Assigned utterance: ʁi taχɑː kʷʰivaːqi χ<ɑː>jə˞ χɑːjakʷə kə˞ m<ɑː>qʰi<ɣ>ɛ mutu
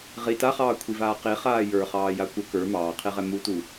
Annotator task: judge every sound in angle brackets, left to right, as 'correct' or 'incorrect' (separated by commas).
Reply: incorrect, correct, incorrect